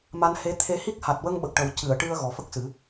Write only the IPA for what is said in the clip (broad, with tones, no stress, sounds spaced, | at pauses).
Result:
m a˧ n h e˧˥ t̪ʰ e˧ h i˦˥ k̚ h a˨˩ t̚ w ə˧ ŋ ɓ ə˨˩ k̚ ʈ ə˨˩ w c ɨ˨˩˨ ə̯ ʈ ɨ˧ ə̯ ɣ ɔ˨˩ f ə˦˥ k̚ s ɨ˨˩˦